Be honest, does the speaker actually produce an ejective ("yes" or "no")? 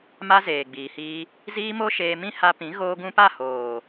no